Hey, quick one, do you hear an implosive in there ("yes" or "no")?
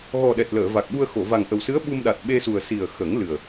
yes